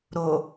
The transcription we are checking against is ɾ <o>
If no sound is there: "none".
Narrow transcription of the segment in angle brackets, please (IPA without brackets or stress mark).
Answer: o